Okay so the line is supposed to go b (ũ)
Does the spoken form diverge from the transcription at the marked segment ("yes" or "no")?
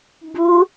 yes